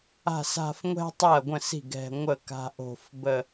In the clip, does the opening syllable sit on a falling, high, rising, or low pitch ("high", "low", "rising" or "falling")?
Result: falling